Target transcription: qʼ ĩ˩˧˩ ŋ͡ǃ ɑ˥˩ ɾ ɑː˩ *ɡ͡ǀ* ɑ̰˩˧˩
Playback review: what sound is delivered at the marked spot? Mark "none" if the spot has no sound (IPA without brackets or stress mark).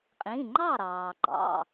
ɡ͡ǃ